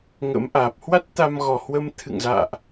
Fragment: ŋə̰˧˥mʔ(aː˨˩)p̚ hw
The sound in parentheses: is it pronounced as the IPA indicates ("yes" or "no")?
yes